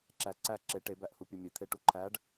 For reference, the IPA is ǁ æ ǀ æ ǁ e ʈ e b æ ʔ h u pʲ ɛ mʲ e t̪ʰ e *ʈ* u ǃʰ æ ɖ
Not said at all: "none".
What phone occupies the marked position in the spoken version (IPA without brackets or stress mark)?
ʈ